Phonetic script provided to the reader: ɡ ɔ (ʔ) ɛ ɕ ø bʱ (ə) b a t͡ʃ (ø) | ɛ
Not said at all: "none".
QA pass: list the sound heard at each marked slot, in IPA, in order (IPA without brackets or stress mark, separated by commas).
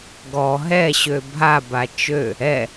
ɦ, a, ø